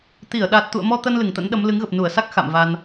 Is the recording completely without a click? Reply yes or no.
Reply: yes